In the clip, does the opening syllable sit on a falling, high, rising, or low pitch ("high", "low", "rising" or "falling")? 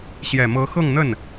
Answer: low